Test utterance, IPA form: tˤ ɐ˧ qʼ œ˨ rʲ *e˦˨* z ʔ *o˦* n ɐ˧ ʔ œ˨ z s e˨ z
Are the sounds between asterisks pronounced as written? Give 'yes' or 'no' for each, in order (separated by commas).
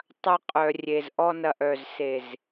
no, no